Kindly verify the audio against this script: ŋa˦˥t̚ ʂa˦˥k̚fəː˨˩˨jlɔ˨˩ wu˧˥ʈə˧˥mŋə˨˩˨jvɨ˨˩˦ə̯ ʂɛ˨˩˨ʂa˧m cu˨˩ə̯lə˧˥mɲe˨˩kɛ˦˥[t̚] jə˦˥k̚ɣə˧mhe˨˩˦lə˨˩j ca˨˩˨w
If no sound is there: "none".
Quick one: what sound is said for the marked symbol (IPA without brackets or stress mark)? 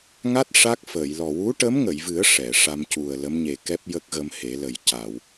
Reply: p̚